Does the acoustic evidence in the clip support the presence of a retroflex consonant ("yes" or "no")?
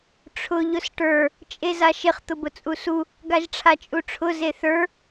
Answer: yes